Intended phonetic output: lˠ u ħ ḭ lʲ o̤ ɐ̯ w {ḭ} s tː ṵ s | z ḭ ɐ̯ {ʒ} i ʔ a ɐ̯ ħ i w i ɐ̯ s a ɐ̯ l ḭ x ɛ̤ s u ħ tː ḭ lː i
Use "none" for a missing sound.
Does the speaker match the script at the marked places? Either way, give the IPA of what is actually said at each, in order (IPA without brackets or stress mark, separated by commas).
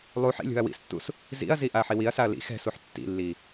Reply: ḭ, z